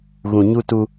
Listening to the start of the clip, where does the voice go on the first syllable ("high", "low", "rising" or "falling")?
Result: low